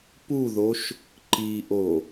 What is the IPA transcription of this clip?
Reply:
puðoʃ | ǃiʔo

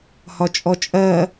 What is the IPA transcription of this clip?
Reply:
hɒt͡ʃʼɔt͡ʃʼɜ

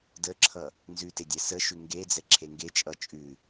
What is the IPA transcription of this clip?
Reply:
dəǁʰʌ | nzʉtedʲɛ səʃʉ ŋɡed͡zɛǁʰe ŋɡet͡ʃʼʌ t͡ʃʼʉ

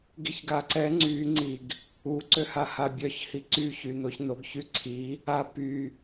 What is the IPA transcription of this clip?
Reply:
ɡiçɡaǀɛ ŋ͡ǀy ŋ͡ǀiɡ | u ǀøhahabʲœç hiǀy çynoçnoɡ çyǀʰi | a py

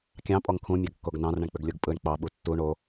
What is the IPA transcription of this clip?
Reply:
kʲɑ̃ pʼɔŋkʰũ mʲɑɡkːoɡnɑ̃r ɳə̃ɳk͡pʏɡlʲoɡpʼɯɳ k͡pɑ ɓutːu ɳo

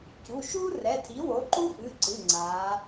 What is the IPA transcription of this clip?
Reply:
cu˩˧˩ʃuː˥rɛ˩˧˩tʰi˩˥ wo˩˥ǃu˥ʔɨ˩˧˩ǀɨ˩˧˩ ŋ͡ǀaː˩˧

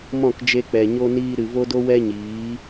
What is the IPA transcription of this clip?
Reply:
mɔ̃˦˨kd͡ʒe˧k͡pɛ˨ ɲo˧niː˧ ɾɨ˨vo˦do˦ wɛ˦ɲiː˨˦

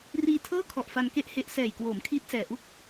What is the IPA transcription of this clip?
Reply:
riː˧tʰɤː˥˩kʰɔ˨˩ʔ fa˧nke˥˩ʔhe˦˥ʔ sɛː˨˩jkwoː˩˦mkʰiː˦˥t̚ sɛː˨˩ʔu˥˩k̚

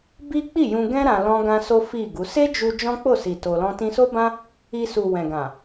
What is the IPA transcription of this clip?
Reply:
bi˦k͡pi˦˨jũ˧ɡɛ̃˦ ɾã˧ lɔ̃˦ɡã˦so˦ fi˦˨ɡu˨˦ se˦d͡ʒu˧ d͡ʒɔ̃˦k͡po˦˨si˨ to˧lɔ̃˦ tĩ˧so˦bã˦ | i˧su˨ wɛ̃˨ɡã˨

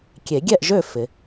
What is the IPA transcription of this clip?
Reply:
kʲe˨˩˦ɡʲɛ˥˨ʔʒø˥˨ fɪ˨˩˦

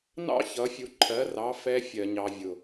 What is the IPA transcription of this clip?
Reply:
nɑ̰˦ çʌ˨˦fʲu˧ǃʰɜ˨˦rɑ˨˦ fɛ˧ fʲɜ˨ɲɑ˨vʲʊ˨

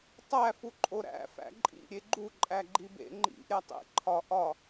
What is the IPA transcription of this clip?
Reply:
tˤæ fuǃʼoɾæ̰ fæ̰ǃʼḭ ɾʲeɡ͡ǃu ǃʼæɡ͡ǃibḛ ŋ͡ǃḭ ɾʲætˤḛ ǃʰɒ ʔɒ

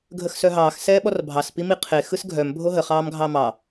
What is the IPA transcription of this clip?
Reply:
ɡʱəxsœɦɑːx sɛːɓɔrbʱɑs pimiqʰe xɯsɡʱœm bʱoɦə χɑːmɡʱɑmɑ

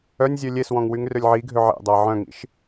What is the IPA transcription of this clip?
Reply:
œnʲzʲø lʲeswɔ̃ŋ wyŋrølʲʕiɡʱø ʕḛdˤa ʕœ̃ŋḭʃ

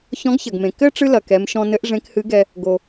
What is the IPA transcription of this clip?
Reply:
çɔ̃˧˥ɡçɐ˩ɡmẽ˩ kɘ˥ ʈ͡ʂɨ˥lɐ˩kɛ˩˧mʃɔ̃˧ nɘ˧˥ʔ ʐẽ˧˥khɨ˧˥ɡɛ˧ | ɡo˩

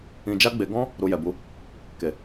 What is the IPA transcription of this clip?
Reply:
ĩ˧d͡ʒa˦ɡ͡be˧ ɡɔ̃˦ | ɾu˧jɛ˨bu˨˦ | ke˨

